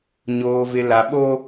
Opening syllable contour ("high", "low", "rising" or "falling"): low